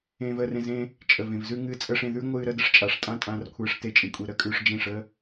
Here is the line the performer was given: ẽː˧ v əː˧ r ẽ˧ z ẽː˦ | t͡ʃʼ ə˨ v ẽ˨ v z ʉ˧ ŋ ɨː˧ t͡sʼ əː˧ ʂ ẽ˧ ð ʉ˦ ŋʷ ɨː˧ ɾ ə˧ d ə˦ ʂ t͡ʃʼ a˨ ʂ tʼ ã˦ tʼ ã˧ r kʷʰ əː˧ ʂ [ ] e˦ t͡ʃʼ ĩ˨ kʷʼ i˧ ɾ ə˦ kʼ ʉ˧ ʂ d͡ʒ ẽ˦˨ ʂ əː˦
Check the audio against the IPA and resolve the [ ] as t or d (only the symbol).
t